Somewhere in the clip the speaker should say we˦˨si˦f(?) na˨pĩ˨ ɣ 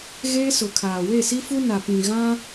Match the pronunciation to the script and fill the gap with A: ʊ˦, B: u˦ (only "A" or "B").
B